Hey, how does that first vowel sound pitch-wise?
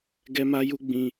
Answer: high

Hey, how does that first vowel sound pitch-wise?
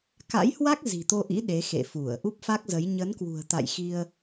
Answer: rising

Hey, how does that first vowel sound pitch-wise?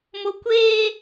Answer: high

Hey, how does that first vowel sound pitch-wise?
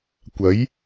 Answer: rising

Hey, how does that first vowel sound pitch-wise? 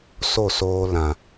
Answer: falling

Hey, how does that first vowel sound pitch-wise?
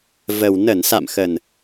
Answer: low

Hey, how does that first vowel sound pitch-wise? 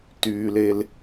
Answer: low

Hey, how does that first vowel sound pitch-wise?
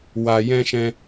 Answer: low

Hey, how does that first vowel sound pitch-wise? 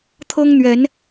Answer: high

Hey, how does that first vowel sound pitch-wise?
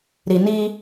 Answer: low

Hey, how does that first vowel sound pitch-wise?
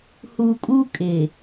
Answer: low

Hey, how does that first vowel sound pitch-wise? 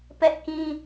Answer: high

